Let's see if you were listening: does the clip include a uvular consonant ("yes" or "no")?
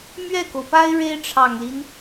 no